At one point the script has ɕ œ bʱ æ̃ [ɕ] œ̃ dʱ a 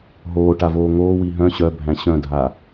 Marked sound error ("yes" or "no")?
no